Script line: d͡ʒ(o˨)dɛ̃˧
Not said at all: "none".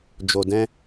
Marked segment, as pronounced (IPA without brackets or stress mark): o˨